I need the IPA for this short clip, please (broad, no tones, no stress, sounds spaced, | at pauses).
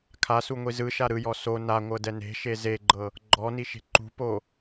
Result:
kʰ a s u ŋʷ i z ɯ ʃ a ɾ ɯ j ɔ s o n a ŋʷ ɤ d ɛ n e̤ ʃ e z e ɡ͡ǃ ɤ | ɡ͡ǃ ɔ n i ʃ e̤ ǃ ṳ p o